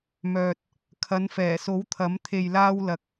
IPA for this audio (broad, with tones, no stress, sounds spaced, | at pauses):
m œː˨ t̚ | kʰ ɐ˨˧ n f ɛː˨˩ s o˨˥ w t̪ʰ ɐ˨˥ m t̪ʰ e˨ j l aː˧ w l ɐ˨ k̚